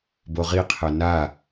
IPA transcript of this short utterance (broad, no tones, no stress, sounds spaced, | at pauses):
b o ʁ i qʰ ɛ n a